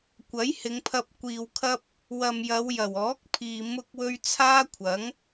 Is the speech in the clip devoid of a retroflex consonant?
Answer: yes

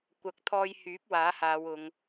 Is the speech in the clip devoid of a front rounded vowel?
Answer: no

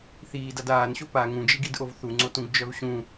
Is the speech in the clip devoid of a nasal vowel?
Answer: no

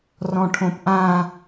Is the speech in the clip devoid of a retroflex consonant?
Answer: no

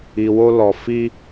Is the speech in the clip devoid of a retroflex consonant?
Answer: yes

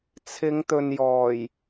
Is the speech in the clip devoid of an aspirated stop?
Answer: no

